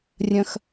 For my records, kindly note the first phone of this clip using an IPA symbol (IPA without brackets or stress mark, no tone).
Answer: rʲ